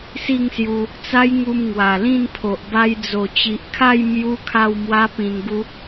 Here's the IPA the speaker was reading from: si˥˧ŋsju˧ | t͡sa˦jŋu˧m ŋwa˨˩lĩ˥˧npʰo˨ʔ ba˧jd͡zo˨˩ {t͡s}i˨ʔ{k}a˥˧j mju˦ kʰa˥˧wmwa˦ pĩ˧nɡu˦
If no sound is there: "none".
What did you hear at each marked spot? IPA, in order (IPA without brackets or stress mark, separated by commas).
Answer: t͡ɕ, kʰ